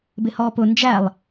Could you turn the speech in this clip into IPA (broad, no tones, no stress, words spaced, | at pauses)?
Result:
bɪhɔːpʊ nd͡ʒælˠ